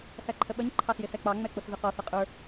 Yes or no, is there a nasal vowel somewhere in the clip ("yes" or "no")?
no